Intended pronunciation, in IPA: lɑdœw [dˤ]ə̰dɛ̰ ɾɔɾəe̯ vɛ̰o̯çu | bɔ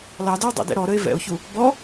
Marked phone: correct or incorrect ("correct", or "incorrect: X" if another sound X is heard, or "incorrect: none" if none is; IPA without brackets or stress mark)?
correct